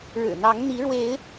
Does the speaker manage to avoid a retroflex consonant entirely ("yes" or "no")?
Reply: no